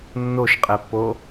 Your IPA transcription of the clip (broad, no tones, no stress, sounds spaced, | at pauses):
nː o ʃ qʼ ɛ pː o